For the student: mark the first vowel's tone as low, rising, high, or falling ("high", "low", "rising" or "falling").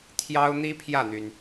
high